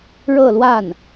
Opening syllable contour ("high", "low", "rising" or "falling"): falling